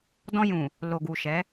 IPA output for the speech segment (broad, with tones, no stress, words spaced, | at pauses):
dɔ̃˧jũ˨ | lo˨ɡu˨ ʃɛ˨˦